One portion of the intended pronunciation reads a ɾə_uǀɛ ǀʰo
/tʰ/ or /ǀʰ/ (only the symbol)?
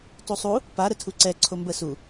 tʰ